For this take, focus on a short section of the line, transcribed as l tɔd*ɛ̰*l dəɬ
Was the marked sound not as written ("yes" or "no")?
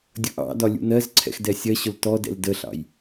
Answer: no